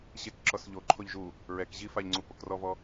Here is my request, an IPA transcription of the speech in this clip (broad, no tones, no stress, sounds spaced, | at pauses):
ɕ e k ǁ ɔ s ʎ o ǃʰ o ʎ ʒ u | ɹ ɛ k ʑ i f a ʎ ŋ͡ǀ u p o k r ɔ v ɔ